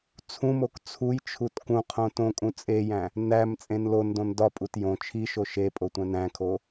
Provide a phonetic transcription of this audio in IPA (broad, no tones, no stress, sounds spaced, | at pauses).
t͡sʰ ũ m o k t͡sʰ u j t͡ʃʰ u t k ũ qʰ õ t õ kʼ ũ t͡sʼ e j æ̃ | n æ m t͡sʼ ẽ n l o n d õ n d ɒ pʼ u t j õ t͡ʃʰ i ʃ o ʃ e pʼ o tʷ æ̃ n æ̃ kʰ o